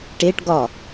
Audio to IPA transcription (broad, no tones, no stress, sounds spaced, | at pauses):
ʈ e ʈ ɡ ɒ